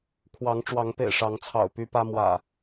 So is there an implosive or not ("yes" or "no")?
no